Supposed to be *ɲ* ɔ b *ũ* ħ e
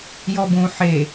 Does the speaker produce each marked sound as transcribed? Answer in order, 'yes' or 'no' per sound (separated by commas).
no, yes